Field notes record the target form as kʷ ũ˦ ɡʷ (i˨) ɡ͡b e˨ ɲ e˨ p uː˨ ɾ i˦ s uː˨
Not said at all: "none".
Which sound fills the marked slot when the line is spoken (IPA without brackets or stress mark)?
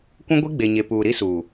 i˦